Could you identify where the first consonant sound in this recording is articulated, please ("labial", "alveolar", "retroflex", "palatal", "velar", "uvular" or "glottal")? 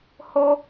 glottal